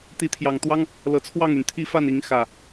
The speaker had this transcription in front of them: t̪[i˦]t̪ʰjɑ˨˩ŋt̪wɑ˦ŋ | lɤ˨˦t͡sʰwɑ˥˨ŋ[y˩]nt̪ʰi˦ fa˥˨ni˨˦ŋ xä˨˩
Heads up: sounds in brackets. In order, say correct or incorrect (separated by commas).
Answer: incorrect, correct